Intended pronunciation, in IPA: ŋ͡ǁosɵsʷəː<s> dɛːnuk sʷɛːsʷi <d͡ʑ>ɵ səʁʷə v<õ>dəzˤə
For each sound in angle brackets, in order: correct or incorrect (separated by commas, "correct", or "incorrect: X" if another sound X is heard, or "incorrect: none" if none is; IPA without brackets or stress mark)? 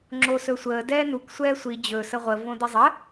incorrect: none, correct, correct